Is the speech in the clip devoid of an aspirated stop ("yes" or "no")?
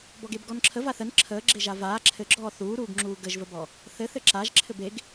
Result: no